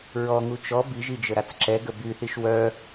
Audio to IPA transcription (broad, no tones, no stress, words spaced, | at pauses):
ɹɔŋu t͡ʃɔ biʒid͡ʒə ɾat͡sǁɛɡə byθiʃ wœ